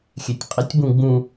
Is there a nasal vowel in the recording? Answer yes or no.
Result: yes